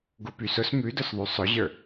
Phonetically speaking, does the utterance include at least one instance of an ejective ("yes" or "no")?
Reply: no